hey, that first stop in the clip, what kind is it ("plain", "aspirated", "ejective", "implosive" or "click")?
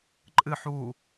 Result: click